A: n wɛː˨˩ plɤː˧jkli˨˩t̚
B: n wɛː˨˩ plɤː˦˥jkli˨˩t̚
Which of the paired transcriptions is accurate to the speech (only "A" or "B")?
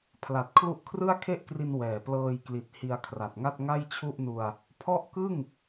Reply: A